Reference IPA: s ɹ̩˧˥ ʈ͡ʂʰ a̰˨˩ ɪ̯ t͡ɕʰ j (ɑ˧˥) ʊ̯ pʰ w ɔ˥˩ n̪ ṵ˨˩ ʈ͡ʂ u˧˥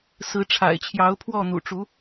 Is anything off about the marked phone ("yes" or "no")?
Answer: no